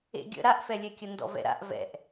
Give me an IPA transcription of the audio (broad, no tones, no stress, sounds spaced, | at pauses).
ḛ ɡʲ ə̰ ɾ a ʔ f ɛ lʲ ɛ kʲ ə n d ɔ̰ v ɛ̰ ɾ a̰ ʔ v ɛ̰ ʔ